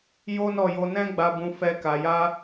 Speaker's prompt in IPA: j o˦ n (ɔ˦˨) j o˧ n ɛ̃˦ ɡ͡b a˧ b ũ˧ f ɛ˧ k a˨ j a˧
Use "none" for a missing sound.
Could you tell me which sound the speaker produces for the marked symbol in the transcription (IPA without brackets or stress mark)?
ɔ˦˨